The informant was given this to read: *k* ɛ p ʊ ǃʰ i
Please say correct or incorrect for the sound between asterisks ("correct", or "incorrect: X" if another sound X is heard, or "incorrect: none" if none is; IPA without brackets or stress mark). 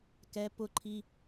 correct